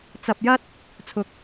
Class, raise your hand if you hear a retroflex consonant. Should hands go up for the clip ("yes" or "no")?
no